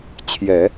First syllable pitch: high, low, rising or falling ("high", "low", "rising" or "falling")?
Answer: low